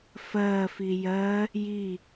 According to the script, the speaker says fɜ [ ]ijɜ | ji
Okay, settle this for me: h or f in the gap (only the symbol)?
f